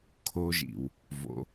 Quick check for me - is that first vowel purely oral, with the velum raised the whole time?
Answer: yes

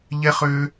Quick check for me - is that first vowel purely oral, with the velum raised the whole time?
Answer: yes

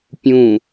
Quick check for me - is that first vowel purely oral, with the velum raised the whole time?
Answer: no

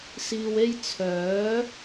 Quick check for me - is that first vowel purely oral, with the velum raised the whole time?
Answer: yes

